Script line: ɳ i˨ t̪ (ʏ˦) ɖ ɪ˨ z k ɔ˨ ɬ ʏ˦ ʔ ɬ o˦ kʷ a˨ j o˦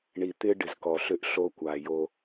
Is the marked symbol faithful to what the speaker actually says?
no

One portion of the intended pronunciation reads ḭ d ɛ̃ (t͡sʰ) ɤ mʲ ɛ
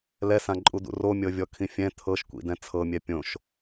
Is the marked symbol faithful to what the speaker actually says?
yes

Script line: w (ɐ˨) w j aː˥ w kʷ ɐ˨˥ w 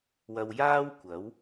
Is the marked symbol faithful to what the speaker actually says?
yes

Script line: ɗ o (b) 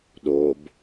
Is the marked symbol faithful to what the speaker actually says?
yes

